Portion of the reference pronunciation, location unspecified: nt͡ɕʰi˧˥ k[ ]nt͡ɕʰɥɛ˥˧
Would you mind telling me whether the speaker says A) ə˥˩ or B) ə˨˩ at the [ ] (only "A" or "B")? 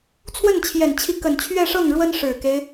B